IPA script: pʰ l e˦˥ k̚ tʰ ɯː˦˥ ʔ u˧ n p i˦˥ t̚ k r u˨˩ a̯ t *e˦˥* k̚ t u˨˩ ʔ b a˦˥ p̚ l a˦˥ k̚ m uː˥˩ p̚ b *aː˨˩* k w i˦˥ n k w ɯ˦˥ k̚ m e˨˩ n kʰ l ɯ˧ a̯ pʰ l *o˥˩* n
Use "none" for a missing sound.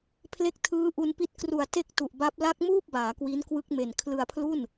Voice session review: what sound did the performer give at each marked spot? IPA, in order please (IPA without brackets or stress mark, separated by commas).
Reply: e˥˩, aː˩˦, u˥˩